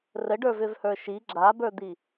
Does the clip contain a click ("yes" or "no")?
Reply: yes